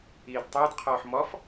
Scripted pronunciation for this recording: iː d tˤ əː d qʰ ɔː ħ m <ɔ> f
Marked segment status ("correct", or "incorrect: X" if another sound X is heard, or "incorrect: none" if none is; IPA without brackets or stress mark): correct